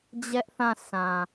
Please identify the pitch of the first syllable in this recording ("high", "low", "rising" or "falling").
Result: high